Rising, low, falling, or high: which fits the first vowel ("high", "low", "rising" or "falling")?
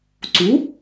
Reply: rising